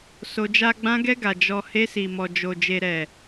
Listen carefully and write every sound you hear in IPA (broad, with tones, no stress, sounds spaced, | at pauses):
s o˧ d͡ʒ a˦ ɡ͡b ã˧ ɡ ɛ˧ ɡ a˨ d͡ʒ ɔ˨ h e˧ s i˨ m ɔ˨ d͡ʒ o˨ d͡ʒ e˨ ɾ ɛ˨